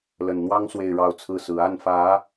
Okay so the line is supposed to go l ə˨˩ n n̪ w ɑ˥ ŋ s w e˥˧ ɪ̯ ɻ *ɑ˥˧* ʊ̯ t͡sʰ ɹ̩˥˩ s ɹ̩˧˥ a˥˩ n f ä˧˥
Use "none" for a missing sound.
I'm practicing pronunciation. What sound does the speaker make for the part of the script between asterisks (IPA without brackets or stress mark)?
ɑ˥˧